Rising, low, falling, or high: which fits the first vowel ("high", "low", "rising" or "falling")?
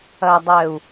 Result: low